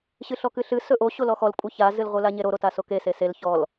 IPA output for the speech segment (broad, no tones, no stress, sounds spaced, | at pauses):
ɕ ɨ ɬ ɔ k ɨ ɬ ɨ s ɵ ʔ o ɕ o l ɔ x ɔ l kʷʼ ɨ ç a z ɨ l ʁʷ ɨ l a ɲ e ɾ o ɾ o t a s o k e s e s e l ç ɔ l